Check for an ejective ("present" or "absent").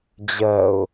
absent